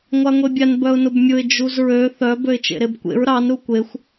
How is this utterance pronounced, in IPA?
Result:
ŋʷ a ŋʷ e bʲ a n b œ ʊ̯ n ʊ b mʲ ʊ ɪ̯ d͡ʒ u z ɹ ø θ œ b ø ɪ̯ t͡ʃ ḛ ɾ e b kʷ ḛ ɹ ɾ ɑ n ɾ u kʷ e xʷ

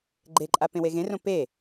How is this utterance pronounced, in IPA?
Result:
ɡ͡ǃ e ǃʼ a p ẽ w e ɣ ẽ r õ p e

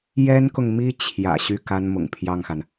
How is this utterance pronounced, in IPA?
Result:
j ɛ˥ n k ʊ˨ ŋ m i˥ t͡ɕʰ j ä̰˨˩ ɕ y˥˩ k a˥ n m ʊ̰˨˩ ŋ pʰ j ɑ˥˩ ŋ x a˩ n

